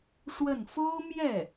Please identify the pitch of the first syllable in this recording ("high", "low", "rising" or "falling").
falling